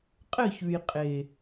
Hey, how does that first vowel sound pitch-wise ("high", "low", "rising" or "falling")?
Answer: falling